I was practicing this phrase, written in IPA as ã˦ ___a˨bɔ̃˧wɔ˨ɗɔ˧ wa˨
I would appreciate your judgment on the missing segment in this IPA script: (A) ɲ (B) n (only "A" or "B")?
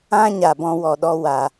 A